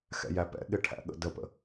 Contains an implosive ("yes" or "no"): yes